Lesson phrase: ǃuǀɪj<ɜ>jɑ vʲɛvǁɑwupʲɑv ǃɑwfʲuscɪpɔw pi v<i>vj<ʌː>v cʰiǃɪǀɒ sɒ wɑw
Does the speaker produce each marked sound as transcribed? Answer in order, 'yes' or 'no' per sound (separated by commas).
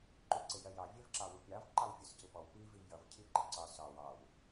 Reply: yes, yes, no